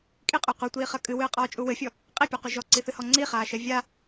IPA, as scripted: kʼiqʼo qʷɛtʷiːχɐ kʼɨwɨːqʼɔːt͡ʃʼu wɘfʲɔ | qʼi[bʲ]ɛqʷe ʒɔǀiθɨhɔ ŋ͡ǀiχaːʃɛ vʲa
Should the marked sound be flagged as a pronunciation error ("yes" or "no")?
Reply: yes